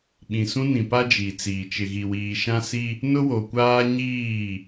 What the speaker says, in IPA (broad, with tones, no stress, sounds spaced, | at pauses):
ɓ ĩ˨ s ũ˦ n ĩ˨ p a˦ d͡ʒ i˨ t͡s iː˨ t͡ʃ ɪ˨ ɣ i˨ w iː˨ ʃ ã˦ s i˦ | n ʊ˦ w o˨ kʷ aː˦ ɲ iː˦˨